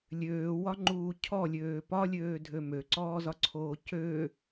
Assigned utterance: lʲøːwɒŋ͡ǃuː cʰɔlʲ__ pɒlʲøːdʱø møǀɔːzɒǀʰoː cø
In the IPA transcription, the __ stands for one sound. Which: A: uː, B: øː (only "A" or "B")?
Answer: B